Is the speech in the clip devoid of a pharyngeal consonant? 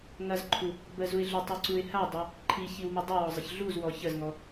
yes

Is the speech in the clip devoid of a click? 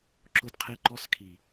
no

